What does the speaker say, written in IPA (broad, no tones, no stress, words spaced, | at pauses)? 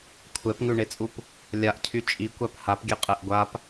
kʷʰɛpŋʉɳet͡sʼup | lʲaʔcʰy t͡ʃʼikʷap hapɡʲɛ qʼɛʔɡʷap